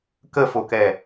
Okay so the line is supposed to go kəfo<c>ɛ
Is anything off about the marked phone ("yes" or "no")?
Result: yes